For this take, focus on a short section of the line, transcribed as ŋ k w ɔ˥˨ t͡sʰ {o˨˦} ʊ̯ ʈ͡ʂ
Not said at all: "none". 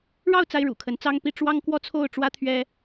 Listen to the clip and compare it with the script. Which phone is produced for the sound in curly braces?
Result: o˥˨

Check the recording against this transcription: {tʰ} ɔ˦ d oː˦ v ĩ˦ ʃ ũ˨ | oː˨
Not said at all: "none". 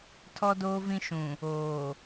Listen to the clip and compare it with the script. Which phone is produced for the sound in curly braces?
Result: tʰ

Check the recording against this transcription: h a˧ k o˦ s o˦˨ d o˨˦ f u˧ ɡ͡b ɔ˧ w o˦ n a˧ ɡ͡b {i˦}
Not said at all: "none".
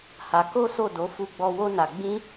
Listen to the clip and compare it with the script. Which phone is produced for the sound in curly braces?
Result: ĩ˦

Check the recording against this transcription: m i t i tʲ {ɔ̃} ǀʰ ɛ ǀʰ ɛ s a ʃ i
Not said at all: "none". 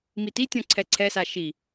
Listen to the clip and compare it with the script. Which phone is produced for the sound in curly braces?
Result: ɔ̃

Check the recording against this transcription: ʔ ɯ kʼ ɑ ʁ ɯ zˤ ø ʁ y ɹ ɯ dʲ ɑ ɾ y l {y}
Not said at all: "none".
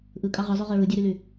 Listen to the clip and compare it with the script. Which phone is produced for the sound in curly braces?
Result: y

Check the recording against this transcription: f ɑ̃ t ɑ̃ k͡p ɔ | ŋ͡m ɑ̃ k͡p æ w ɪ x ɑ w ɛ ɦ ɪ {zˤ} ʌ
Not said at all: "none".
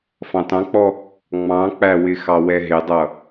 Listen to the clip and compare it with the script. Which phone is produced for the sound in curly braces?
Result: dˤ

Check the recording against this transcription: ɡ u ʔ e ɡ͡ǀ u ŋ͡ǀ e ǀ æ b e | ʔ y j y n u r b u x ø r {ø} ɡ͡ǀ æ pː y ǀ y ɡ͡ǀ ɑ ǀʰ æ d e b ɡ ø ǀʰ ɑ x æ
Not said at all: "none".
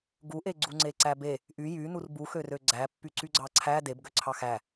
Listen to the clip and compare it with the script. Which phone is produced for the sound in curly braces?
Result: ø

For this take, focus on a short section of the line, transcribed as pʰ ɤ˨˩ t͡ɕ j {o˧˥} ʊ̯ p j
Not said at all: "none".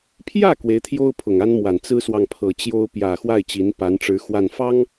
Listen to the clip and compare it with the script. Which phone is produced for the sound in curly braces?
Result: o˥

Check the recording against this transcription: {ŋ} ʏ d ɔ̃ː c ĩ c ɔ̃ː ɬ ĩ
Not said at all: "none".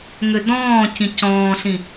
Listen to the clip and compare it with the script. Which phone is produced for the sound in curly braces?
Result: ŋ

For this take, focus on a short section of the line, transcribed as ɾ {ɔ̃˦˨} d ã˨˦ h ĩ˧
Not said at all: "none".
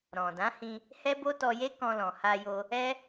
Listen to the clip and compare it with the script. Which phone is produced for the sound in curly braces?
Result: ɔ̃˨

